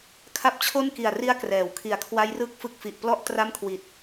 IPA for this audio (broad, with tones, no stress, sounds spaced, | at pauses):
kʰ a˦˥ p̚ t͡ɕʰ o˥˩ n k i˨˩ a̯ r i˦˥ a̯ k r ɛː˩˦ w kʰ i˨˩ a̯ kʰ w a˦˥ j r ɯ˥˩ k̚ f ɯ˦˥ k̚ f i˨˩ ʔ p l ɔ˥˩ ʔ t r a˥˩ m kʰ w i˨˩ t̚